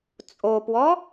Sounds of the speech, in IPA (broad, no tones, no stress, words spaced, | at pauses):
t͡sʼopwɔ